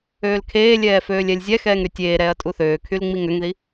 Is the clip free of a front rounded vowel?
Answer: no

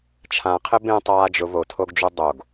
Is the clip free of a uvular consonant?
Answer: no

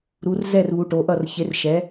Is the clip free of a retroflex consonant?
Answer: no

